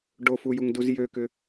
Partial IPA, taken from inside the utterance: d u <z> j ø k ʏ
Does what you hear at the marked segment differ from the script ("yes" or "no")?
no